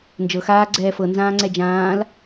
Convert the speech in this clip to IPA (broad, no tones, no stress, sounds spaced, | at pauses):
n d͡ʒ ɤ x aː ɡ͡ǀ ɛː f ɤ n z ãː ŋ͡ǀ ɛ d͡ʒ ãː l